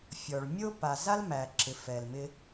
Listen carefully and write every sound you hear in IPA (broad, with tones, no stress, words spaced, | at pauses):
fʲɔ˨ɭ mʲo˦pa˨ za˦lmæ˨ǁɪ˨ fɛ˨lmɪ˦